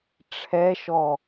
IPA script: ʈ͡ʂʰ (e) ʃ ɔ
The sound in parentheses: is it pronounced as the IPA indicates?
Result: no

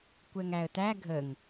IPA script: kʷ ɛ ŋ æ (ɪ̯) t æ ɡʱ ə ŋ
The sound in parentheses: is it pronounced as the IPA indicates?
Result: no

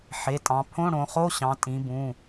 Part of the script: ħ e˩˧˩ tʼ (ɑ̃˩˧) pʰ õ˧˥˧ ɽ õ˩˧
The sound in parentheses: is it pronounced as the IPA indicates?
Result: yes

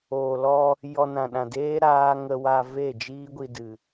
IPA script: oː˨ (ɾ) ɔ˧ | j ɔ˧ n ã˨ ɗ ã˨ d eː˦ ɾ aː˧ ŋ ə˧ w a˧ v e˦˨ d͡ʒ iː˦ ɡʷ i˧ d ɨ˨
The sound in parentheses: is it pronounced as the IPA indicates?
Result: no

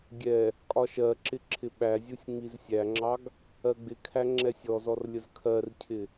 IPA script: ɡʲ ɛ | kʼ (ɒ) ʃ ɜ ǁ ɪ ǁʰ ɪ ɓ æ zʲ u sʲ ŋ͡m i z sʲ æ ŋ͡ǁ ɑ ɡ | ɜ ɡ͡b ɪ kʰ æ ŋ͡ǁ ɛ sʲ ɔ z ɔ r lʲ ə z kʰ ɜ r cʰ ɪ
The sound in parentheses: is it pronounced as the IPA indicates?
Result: yes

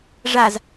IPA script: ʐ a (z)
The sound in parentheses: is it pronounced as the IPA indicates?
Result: yes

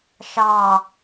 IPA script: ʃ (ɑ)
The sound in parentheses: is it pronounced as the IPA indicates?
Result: yes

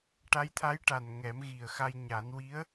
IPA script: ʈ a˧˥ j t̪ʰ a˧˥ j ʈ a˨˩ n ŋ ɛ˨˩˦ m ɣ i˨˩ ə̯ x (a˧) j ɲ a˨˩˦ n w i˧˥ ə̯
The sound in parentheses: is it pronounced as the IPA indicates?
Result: yes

